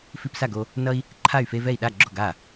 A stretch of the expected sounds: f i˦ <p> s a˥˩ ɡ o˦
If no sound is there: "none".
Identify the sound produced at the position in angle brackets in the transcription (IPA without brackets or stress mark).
p